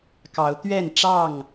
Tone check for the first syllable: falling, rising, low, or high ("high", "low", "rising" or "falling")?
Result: rising